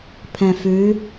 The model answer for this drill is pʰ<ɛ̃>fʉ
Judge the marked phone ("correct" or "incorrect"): correct